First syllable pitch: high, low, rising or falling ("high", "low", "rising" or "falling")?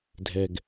low